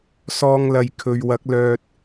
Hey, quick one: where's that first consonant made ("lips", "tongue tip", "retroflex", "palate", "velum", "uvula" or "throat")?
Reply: tongue tip